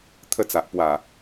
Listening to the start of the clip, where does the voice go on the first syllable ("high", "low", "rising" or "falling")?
falling